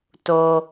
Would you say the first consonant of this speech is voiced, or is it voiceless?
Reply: voiceless